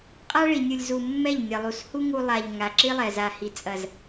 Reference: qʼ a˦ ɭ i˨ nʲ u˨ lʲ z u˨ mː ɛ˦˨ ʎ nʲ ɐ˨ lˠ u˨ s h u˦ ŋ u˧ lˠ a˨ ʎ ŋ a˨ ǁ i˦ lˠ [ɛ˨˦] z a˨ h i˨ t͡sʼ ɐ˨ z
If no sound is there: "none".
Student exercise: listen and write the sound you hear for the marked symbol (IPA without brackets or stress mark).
ɛ˨